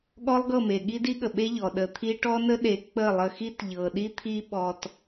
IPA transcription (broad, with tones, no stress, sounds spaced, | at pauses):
ɠ ɔ˦ lˠ ɡ ɤ˦˨ m e˨ ɠ i˦ d i˦ ɠ ə˨ ɓ e˦ ʎ ɔ˨ ɗ ə˨ t̪ʰ i˦ ʈ ɔ˦ n ə˦ ɗ e˨˦ k͡p ə˦˨ lˠ ə˧ x i˦ t ʎ ɤ˨ ɗ i˦ t̪ʰ i˦ ɓ ɔ˧ t